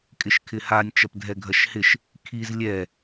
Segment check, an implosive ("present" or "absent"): absent